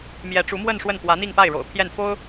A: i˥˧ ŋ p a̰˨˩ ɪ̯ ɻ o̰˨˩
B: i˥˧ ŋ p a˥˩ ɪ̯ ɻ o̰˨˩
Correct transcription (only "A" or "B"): B